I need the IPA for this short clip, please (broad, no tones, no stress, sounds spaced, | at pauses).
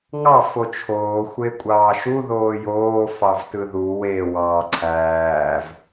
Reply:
ŋ ɑ f o t͡ʃʰ oː xʷ e kʷʼ ɑː ʃ u ð oː j oː f ɑ v t ɯ ð u w e w ɑː ǀʰ æː v